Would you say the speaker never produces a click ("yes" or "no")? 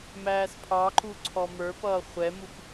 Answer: no